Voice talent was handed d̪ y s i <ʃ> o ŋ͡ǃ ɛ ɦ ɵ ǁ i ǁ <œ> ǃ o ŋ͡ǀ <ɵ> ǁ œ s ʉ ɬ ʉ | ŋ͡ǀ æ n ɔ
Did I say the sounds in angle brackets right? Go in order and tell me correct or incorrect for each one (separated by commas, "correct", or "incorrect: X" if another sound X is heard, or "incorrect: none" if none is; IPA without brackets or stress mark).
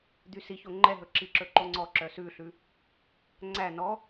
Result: incorrect: ç, incorrect: ɵ, incorrect: ɔ